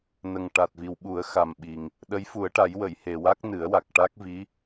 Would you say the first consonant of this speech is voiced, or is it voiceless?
voiced